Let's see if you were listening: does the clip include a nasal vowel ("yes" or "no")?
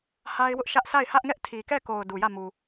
no